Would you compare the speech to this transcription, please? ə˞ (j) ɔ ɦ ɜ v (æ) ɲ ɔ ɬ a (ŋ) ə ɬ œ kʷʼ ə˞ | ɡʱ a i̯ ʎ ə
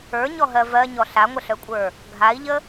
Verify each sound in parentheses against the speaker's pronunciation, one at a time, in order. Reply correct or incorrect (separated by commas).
incorrect, incorrect, incorrect